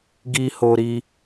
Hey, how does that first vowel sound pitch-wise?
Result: high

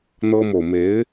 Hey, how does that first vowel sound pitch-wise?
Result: high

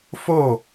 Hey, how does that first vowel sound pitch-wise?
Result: falling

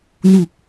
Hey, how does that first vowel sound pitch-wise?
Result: low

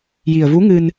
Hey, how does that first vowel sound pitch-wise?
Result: low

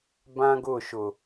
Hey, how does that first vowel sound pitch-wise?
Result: high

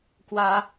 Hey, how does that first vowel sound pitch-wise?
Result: high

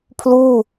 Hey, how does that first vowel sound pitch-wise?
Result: falling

